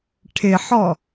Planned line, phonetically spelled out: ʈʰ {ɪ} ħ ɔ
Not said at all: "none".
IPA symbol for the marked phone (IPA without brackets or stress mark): ɪ